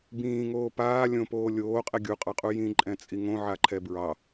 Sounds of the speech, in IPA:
bĩːŋoː paː lʲõpoː lʲoːqʼɛ ɡʲuqʼɑqʼu jĩǃʼɛ̃t͡sʼi ŋõʕaǃʰɛ bɹɑ

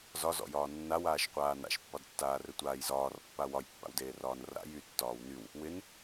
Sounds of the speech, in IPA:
zɒzɔ̰jɒː nːawaːʃqʷaː na̰ʃpːɒdtːaːrɘ tʷaːjzɒːrpːa wɒjpːa̰wdeː rɒːnra̰ jytːɒːw nyw | wɪn

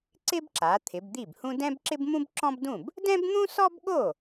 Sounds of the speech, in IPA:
ǀɪ˥bǁa˩˧ t̪ʰɪ˩˧bd̪i˥˩bhũ˥ dɛ̃˥bǁɪ˥bmũ˥b ǁɔ̃˥bdũ˥˩b | dɛ̃˥bn̪ũ˥sɔ˥bɠo˥˩

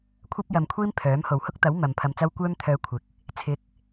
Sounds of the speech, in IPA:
kʷʰɐ˥p̚jɐ˨mkʷʰiː˥m pʰœː˨˥m ho˨˩whʊ˥k̚t̪ɐ˨˥w mɐ˨mpʰɐ˧mt͡sɐ˥w kʷœː˥mt̪ʰœː˧ kʷʰɪ˨k̚ | t͡sʰɪ˨˥k̚

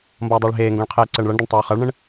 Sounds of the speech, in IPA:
mbʌːdˤəːɭɦeːŋɡõɭ qʰeːǀəːɳɭʌɳdʌɳ tˤoːχʌɭɳə̃ɳ

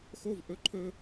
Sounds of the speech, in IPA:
xo˦˨v ʔɵ˧ǃʰɵ˧

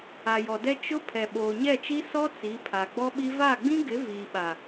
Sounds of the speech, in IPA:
a˨jɔ˨dɛ˦ t͡ʃʊ˦ pʰɛ˨ɓoː˨ɲɛ˦˨t͡ʃi˦ sɔ˦ t͡si˨˦pʰa˨ ɡ͡bɔ˦ɓi˦ va˦˨ɡ͡bĩ˦ɡɪ˨˦ viː˨ɓa˨

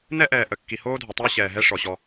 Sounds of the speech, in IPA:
nɛ˦ʔɛː˨ʔə˨ kːi˨hoː˦dʱo˨tˤoː˦ ɕɛː˨ɦɛ˦ ʂɔ˨ɕɔ˦

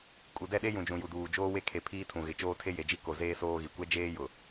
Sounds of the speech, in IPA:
kʼu˨dɛ˦˨ɗe˦ jũ˨d͡ʒũ˨ju˨duː˨ d͡ʒoː˦we˦kʰe˨ pʰiː˦tʰũ˨ɣɪ˨ t͡ʃoː˦tʰe˦je˨d͡ʒi˦ ko˨zeː˦ soː˦ɣi˨ kʷɛ˦d͡ʒeː˦ jʊ˨

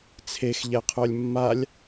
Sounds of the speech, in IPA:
t͡sʰexʎɛqʰœlʲ mːalʲ

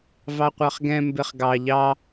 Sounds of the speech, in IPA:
vɑqʷɑχɡɛ̃ mbeχɡɑ ʎɑ

